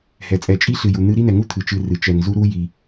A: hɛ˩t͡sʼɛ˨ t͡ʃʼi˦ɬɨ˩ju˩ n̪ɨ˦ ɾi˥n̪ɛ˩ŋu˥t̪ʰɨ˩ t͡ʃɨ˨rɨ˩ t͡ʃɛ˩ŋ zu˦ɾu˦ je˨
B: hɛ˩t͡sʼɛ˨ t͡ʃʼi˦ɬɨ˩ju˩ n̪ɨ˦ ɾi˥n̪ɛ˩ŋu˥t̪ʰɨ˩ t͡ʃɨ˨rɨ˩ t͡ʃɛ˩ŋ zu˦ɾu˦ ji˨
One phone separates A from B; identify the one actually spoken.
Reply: B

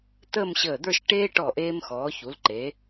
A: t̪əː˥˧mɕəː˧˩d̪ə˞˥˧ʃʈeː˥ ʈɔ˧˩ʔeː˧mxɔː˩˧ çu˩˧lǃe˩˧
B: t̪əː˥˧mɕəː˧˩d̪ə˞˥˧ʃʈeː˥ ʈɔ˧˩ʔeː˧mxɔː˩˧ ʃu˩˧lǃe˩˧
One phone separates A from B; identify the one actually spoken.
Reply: A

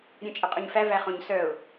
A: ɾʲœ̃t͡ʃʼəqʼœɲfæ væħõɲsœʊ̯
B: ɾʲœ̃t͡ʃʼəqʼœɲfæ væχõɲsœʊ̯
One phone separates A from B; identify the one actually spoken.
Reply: B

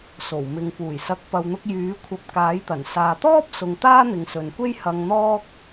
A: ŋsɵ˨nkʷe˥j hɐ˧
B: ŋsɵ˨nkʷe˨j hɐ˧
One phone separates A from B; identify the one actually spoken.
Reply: A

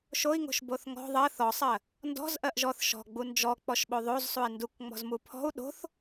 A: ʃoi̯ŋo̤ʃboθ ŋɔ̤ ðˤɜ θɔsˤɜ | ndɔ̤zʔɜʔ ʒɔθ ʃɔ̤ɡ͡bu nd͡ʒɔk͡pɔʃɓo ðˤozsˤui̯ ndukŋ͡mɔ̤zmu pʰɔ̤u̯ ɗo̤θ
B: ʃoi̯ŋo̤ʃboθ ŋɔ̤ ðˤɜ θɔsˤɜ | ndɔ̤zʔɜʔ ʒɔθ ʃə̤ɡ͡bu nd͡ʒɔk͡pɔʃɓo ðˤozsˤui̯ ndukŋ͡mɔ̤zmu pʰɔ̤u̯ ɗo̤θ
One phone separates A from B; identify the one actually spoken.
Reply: A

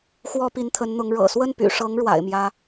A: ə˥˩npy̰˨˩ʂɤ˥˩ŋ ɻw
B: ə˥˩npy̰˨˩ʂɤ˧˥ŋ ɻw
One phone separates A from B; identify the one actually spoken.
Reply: B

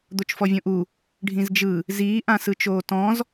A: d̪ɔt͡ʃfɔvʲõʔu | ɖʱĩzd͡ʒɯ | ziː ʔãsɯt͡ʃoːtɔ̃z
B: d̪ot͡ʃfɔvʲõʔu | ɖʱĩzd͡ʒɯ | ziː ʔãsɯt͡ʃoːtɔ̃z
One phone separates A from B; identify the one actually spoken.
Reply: B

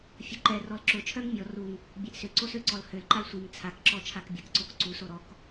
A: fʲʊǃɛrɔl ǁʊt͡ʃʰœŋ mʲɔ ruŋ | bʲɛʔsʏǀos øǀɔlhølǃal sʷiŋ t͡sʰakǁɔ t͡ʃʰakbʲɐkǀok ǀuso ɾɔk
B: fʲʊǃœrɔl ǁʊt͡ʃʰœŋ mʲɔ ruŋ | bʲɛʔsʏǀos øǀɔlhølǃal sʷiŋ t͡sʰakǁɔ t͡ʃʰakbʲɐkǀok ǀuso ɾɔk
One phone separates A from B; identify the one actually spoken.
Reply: A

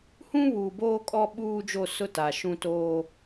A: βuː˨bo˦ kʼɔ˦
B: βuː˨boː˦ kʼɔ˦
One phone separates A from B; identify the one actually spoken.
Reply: B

